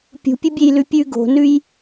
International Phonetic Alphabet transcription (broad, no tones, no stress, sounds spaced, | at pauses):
pʲ ṳ pʲ ɨ bʲ e j l ʉ pʲ ʉ ɡ o̤ n ʉ j